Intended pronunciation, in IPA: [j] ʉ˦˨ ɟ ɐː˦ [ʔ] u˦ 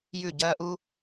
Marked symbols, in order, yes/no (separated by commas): yes, yes